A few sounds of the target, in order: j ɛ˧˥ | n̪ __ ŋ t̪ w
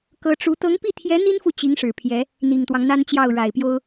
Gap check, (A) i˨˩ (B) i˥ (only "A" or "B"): A